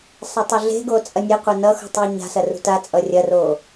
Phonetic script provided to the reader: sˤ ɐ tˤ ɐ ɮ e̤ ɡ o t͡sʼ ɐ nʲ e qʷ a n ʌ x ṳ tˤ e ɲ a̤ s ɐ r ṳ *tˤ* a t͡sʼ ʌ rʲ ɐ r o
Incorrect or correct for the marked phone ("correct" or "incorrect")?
incorrect